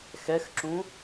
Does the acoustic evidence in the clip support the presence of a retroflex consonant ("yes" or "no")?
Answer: no